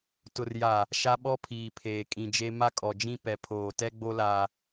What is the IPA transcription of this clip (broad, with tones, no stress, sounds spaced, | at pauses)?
t ʊ˨ r j a˨ | ʃ a˦ ɓ ɔ˦ pʰ iː˨ pʰ eː˨ kʼ ĩ˨ d͡ʒ e˦ m a˦ kʼ ɔ˨ d͡ʒ ĩ˦ p ɛ˨ pʰ oː˨ t ɛ˦ ɡ͡b o˦ l a˦